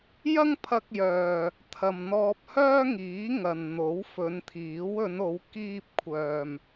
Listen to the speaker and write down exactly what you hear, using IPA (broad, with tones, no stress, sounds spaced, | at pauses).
j ɐ˥ ŋ pʰ ɐ˧ k̚ j œː˨ | t̪ʰ ɐ˨ m n̪ ɔː˧ p̚ h œː˥ ŋ iː˨˥ ŋ ɐ˨ n n̪ o˨˥ w f ɵ˨˧ n t̪ʰ iː˨˥ w ɵ˨˧ n o˨˧ w k iː˧ p̚ kʷʰ œː˨ m